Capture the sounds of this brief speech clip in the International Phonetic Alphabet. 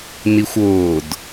nixʷʊːd

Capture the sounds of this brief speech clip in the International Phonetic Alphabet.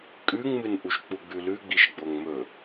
kʼʉŋmɨnʔuʃ k͡puɡ͡bʉlʉ ɡ͡biʃɡ͡boŋmɵ

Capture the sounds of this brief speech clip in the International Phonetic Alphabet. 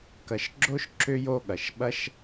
kɐ˨ʃɡ͡ǁo˦ʃ ǁʏ˦jo˦ɠɐ˨ʃ ɓɐ˦ʃ

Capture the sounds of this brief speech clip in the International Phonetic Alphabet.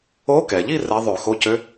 o˧˥kɛ˩ʎi˥˧ rɛ˧˥ ðˤø˧˩˧xo˧˥˧cø˧˥

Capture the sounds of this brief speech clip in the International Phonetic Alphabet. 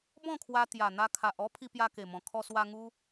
bɔ̃˥˧kʰwa˧ t̪ja˨˩n̪a˧kʰa˨ʔɔ˦ pʰi˧pja˧ke˨˩mɔ̃˨˩ kʰɔ˧swa˧ ŋu˧

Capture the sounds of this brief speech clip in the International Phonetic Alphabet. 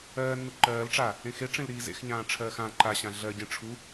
ɜː nːuǃɜːl ʈ͡ʂa | ẽxeʈ͡ʂẽlɾiː zḛxɲãː ʈ͡ʂʰɜːxã ǃaɕã ɮɜɟẽ ʈ͡ʂʰu

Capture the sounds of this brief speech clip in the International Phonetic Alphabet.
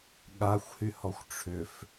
ɠaxʷhyhɔxʷ ʈ͡ʂʰʏf

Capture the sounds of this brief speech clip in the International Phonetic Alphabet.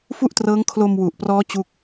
fu˥˩ʔtrɤː˦˥ŋ kʰlo˧mwu˨˩ʔprɔː˦˥ t͡ɕu˥˩k̚

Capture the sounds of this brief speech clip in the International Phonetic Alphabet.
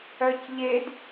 œcʎed

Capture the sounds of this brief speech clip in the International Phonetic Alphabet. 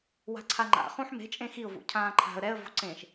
wa̤ǀʰaŋ͡ǃa̰χũħ me̤t͡ʃʼẽ xiʊ̯vṵ cʰãːǃʰa̤ə̯ ɾɛə̯vo̤ ǀẽʃ

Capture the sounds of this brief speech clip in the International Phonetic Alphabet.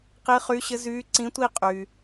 qi˧˥ χy˧˥ɕɘ˧˥zyː˧˥ ǀĩ˧˥ tʷi˥˧ qʼyː˩

